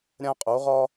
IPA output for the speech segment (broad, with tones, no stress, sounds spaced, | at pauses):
ɾʲ ã˥ qʼ o˩˥ ʁ ɒ˥